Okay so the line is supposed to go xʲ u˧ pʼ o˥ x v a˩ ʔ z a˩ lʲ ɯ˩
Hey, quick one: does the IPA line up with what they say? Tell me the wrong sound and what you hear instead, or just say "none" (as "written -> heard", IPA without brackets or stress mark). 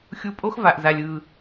none